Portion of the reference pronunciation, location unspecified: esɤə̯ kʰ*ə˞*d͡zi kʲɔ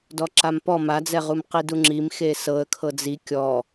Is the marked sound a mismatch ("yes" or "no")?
yes